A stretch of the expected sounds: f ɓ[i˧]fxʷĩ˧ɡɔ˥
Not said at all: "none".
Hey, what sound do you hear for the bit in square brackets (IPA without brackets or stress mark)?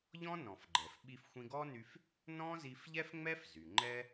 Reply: i˧